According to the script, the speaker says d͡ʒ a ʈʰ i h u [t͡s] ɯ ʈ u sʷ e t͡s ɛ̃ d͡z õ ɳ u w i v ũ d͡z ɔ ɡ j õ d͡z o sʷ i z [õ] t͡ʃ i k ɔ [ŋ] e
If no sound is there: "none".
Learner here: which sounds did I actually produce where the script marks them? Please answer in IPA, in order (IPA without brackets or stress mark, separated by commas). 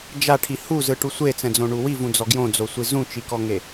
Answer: z, ũ, ŋ